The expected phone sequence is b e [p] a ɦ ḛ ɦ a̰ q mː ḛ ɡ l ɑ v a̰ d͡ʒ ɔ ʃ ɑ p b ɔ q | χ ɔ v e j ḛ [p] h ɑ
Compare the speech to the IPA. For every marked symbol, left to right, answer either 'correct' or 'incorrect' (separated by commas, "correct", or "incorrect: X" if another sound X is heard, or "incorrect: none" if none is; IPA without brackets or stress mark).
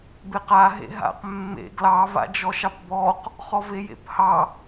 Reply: incorrect: q, correct